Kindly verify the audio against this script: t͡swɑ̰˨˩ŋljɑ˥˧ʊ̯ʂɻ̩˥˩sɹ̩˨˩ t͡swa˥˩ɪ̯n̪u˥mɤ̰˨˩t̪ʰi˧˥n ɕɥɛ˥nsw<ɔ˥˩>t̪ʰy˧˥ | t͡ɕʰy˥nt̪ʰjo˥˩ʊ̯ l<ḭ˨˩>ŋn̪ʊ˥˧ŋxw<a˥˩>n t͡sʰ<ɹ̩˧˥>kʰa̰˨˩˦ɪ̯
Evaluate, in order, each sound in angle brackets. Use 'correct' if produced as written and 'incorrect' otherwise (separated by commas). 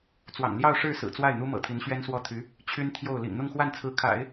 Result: correct, correct, correct, correct